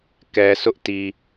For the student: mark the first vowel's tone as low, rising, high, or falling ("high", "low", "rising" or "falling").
low